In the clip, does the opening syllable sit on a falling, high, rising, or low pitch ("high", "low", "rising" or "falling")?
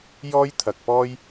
high